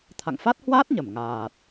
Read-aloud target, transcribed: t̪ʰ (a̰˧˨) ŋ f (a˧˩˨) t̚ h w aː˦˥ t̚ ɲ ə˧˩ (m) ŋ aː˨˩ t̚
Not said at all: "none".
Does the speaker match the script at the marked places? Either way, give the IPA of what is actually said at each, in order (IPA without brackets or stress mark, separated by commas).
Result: a̰˧˨, a˦˥, m